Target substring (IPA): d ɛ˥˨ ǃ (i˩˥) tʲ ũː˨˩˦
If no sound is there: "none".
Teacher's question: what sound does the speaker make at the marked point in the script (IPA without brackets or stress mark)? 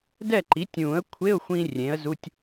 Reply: i˩˥